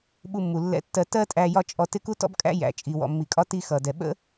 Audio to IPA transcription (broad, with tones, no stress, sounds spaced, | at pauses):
ɓ u˧ mː u˩ lː ɛ̰˧ tː ɜ˧ t ɜ˥ tʼ æ˧ j ɒ˥ t͡ʃʼ ɔ˧ t ɪ˥ k u˥ t ɔ̰˥ b kʼ æ̰˥ j æ̰˩ t͡ʃʼ i˩ w ɔ̰˩ mː i˩ kʼ ɒ˧ t i˧ x ʌ˩ d ɛ˩ ɓ ə̰˥